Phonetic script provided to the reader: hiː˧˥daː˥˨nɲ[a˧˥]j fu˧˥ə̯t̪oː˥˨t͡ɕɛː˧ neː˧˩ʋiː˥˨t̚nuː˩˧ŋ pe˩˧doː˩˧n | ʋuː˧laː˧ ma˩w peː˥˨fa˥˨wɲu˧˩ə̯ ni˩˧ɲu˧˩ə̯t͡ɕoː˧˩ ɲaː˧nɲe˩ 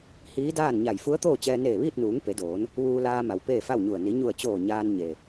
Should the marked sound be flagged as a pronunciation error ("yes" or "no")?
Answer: yes